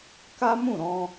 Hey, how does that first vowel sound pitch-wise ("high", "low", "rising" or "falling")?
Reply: high